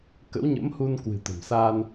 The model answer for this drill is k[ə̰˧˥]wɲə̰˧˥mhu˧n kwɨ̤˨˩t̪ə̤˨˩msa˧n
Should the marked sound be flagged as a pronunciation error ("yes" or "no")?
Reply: no